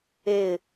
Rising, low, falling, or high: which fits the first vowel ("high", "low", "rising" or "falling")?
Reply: falling